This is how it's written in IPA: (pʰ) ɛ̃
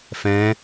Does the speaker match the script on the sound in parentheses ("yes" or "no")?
no